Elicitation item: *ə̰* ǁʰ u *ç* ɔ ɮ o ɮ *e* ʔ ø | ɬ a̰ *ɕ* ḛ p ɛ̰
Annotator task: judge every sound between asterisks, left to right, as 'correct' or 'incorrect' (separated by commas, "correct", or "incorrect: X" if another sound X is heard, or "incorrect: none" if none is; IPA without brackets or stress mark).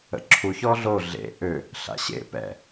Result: correct, correct, incorrect: ḛ, correct